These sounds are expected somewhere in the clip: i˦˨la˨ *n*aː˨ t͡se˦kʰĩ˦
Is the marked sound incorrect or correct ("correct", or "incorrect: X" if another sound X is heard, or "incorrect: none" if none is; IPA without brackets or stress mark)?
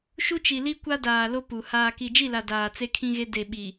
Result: incorrect: d